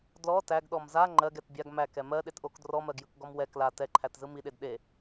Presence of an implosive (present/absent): present